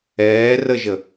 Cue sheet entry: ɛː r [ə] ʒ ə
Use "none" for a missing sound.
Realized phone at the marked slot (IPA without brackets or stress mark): ə